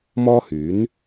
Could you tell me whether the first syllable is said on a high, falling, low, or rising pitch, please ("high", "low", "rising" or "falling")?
high